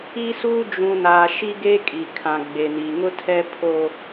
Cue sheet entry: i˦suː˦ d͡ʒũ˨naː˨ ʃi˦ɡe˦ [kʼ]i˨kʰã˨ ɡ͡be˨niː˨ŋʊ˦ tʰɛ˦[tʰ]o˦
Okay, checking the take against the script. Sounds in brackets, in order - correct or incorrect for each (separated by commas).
correct, incorrect